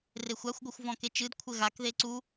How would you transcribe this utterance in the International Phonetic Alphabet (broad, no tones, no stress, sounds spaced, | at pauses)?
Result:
r e xʷ a xʷ ɡʷ ɘ xʷ v ɔ̃ k e t͡ʃ ɨ d kʷʰ ɘ ɣ a k ð e ǀ u